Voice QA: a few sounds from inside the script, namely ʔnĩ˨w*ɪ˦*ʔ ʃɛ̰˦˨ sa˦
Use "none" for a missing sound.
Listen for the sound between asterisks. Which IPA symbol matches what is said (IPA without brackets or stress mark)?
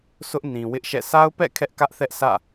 ɪ˦